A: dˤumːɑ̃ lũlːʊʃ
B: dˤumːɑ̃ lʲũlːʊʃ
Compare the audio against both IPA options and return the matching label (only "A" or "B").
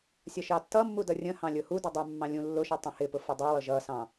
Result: B